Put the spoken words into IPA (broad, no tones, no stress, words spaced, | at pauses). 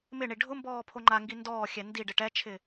mɪɳi ɖʱʊ mbɔːpʰoŋ͡ǃaŋɡi ndɔːxʲɛ ndiɖ ɪʈɛt͡ʃʰɪ